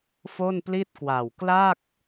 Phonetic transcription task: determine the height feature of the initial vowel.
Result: mid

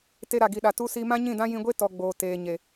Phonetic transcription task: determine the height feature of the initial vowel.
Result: mid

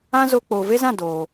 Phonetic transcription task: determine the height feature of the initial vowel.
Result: low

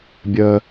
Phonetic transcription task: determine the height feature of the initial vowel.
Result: mid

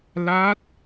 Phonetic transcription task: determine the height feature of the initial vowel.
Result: low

